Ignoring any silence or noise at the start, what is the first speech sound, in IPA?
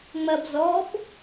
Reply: ŋ͡m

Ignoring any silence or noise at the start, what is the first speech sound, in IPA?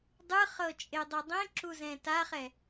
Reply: dˤ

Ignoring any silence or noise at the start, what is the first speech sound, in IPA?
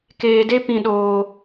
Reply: k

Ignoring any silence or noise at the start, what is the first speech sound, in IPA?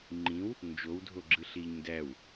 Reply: ŋ͡ǃ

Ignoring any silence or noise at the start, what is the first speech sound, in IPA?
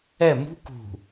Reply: ɛ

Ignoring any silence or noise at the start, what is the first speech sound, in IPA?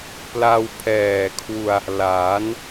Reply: p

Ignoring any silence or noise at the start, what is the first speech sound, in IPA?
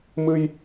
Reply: m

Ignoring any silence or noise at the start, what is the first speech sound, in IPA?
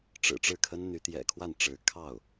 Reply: ʈ͡ʂ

